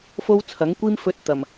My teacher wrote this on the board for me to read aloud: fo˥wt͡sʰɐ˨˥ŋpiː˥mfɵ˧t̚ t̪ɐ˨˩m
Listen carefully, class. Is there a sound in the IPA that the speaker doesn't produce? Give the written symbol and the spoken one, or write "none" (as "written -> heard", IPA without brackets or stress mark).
p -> kʷ